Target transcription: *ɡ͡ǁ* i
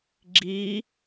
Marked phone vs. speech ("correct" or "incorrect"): correct